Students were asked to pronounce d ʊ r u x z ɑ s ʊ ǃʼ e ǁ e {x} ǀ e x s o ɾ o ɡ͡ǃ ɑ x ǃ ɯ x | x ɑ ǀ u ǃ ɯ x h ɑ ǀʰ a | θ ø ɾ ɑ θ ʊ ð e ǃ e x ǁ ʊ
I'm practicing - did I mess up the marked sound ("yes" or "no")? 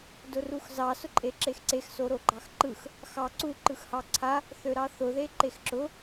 no